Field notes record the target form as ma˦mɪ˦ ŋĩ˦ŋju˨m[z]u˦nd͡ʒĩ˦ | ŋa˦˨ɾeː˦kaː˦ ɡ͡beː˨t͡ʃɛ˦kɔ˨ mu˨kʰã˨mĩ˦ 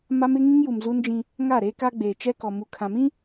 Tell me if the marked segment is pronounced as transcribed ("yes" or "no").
yes